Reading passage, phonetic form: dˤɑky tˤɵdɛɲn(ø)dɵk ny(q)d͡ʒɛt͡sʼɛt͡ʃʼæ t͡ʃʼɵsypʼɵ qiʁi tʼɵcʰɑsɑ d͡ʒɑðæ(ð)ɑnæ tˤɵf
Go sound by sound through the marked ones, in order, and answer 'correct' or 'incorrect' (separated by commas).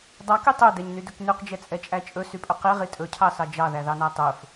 incorrect, correct, correct